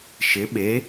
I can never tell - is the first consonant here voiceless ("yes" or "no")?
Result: yes